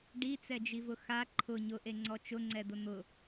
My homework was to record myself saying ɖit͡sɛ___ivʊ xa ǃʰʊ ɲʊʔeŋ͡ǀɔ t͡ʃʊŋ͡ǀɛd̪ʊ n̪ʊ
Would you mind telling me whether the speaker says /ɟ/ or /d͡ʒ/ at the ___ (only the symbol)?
d͡ʒ